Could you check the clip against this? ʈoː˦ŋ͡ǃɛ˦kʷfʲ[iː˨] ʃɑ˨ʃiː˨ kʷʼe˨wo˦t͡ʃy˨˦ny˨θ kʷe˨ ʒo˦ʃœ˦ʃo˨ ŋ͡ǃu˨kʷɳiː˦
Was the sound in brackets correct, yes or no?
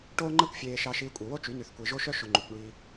no